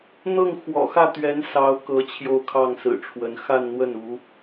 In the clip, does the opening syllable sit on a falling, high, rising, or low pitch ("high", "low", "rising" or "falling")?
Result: falling